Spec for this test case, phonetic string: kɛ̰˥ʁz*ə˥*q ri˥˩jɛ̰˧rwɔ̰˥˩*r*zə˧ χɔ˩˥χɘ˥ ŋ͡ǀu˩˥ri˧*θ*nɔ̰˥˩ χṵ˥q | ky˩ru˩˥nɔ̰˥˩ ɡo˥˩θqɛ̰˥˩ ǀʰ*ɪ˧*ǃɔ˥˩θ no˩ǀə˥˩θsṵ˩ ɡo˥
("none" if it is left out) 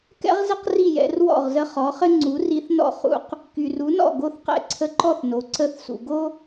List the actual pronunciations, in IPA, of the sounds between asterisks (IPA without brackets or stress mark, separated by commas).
ə˥, ʁ, θ, ə˧